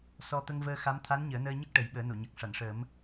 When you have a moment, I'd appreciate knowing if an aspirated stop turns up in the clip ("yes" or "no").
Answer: yes